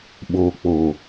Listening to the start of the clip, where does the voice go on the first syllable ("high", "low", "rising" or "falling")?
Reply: low